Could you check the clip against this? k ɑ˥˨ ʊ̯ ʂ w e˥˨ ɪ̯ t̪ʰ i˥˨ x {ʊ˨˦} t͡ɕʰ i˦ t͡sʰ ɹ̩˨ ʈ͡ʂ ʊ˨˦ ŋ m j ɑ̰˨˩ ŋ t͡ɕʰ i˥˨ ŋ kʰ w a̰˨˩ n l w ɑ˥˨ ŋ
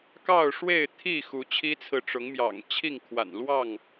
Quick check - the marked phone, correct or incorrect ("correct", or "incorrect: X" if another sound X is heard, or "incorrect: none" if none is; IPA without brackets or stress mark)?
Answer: incorrect: u˨˦